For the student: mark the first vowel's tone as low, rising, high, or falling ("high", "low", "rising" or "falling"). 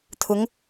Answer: rising